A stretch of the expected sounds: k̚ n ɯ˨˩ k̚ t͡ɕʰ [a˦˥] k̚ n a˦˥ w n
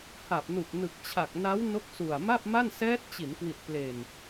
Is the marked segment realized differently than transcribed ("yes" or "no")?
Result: yes